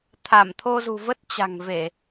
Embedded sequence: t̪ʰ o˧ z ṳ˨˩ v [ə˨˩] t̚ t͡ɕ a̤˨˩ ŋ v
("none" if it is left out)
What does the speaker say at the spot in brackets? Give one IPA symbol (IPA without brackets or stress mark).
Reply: ə˦˥